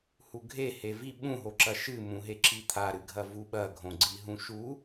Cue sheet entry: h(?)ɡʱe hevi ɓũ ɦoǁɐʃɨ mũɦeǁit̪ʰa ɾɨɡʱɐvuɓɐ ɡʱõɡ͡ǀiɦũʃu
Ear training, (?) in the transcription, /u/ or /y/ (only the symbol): u